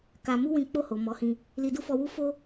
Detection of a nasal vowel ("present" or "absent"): present